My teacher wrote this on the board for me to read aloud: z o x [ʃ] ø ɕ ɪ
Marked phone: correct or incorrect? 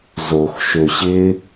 correct